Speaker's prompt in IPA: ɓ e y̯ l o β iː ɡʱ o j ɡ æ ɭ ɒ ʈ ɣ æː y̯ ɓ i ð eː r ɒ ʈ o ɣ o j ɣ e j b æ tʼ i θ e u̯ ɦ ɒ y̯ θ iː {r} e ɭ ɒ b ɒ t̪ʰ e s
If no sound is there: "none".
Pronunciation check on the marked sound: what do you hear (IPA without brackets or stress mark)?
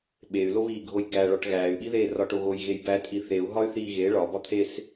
ɣ